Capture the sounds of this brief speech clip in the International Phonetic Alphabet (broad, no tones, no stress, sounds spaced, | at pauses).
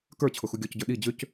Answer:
k ə˞ t͡ɕʰ ʊ x u ɡʲ ɔ c ɟ ə˞ ɗ i d͡ʑ ʏ c